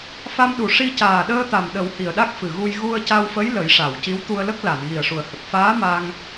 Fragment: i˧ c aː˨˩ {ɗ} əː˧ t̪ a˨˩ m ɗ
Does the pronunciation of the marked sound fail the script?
no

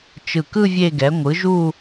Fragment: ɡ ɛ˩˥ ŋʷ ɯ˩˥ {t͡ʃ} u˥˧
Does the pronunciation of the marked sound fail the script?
yes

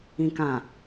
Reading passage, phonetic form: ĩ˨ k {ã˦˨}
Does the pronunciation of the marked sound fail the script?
yes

